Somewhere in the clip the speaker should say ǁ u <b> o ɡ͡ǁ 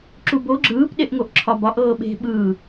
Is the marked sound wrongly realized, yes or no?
no